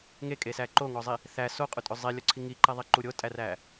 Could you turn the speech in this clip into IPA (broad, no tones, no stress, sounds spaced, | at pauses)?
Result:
ŋ e kʼ e s æ ǃ o ŋ ɔ zˤ i | θ æ s o qʼ u tʼ ɵ zˤ i lʲ ɔ ǀʰ i ŋ i ǃ ɛ ðˤ i ǃ u ɾʲ o tʼ æ r æ